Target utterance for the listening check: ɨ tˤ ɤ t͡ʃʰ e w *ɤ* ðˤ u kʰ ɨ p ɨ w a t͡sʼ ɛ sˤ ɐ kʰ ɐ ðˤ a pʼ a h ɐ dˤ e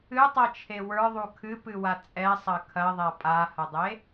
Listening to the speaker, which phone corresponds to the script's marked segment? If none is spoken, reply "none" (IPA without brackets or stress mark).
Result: ə˞